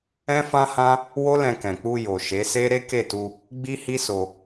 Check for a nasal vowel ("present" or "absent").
present